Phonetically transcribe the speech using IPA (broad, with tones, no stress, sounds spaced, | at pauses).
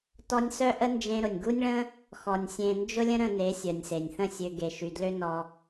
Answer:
t ɔ˧ nʲ s œ˦ ʔ ə˦ n d͡ʒ ẽ˧ ɾ ʊ˨ nʲ ɡ u˦ nʲ ɭ ə̃˦ | x ɔ˨ nʲ sʲ ẽ˧ n d͡ʒ ʊ˦ lʲ ə̃˦ ɾ ə̃˧ n e˨˦ sʲ œ˨ nʲ s e˨ nʲ θ ə̃˦˨ sʲ ø˧ ɡ e˨ ʃ y˨ d l ø˦ n ɔ˧